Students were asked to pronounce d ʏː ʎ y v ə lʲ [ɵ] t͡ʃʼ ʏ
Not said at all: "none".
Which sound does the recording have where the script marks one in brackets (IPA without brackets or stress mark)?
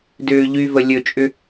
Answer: ɵ